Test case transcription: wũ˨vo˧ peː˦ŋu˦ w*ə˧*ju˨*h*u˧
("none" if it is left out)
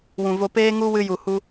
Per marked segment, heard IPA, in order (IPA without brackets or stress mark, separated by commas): ɨ˧, h